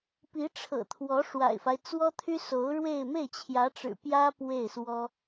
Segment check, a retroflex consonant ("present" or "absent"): present